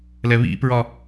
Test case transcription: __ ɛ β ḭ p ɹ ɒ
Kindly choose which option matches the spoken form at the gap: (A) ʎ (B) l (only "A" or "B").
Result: B